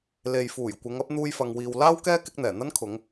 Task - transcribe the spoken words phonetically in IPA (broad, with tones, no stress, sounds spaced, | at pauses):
l e˨ j f uː˨˩ j kʷ ɪ˨˧ ŋ ɐ˨˥ p̚ n̪ uː˧ j f ɐ˨ ŋ w iː˨ w l aː˥ w k ɛː˥ k ɪ˥ k̚ n̪ ɛː˨˩ n̪ ɐ˥ n kʰ ʊ˨˧ ŋ